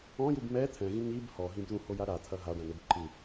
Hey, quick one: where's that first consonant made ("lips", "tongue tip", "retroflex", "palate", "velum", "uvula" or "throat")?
palate